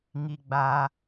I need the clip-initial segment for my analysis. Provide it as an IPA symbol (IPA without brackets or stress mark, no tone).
ŋ